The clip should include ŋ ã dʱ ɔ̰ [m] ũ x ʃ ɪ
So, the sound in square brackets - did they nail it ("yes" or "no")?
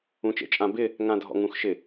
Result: no